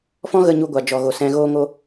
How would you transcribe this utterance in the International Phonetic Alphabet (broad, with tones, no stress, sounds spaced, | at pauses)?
f ɔ̃˦ ɣ ə˧ ɲ u˧ ɡʷ a˨ d͡ʒ ɔ˨ ɣ o˨ s ɛ̃˧ ɣ oː˦ ŋ o˦